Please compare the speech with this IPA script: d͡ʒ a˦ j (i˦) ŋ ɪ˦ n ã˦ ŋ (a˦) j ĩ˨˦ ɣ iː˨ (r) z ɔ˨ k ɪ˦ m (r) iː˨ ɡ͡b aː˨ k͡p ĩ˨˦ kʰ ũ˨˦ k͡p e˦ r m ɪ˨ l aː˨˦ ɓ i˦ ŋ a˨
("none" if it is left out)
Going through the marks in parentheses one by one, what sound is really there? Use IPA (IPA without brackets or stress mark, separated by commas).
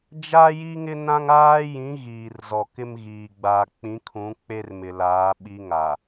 i˦, aː˦, r, ɣ